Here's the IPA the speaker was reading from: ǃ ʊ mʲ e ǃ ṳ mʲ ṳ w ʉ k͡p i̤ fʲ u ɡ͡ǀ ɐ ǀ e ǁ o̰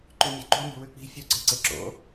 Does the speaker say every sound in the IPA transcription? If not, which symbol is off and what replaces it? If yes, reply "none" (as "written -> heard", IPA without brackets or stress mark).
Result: ʊ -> ʉ